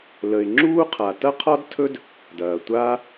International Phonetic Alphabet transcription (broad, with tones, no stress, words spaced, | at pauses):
lə˩ɪ̯ŋ͡ǁuː˥qʰa˩ tɐ˥qʰɒ˥dtʰɵ˥d | dɐː˩tʷaː˥